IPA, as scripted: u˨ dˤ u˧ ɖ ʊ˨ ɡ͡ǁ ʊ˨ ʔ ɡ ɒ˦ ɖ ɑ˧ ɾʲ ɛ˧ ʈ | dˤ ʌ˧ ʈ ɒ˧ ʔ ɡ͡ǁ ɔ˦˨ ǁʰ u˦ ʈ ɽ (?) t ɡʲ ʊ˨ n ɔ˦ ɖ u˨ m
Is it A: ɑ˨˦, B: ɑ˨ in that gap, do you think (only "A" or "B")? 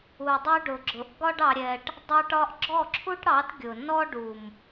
A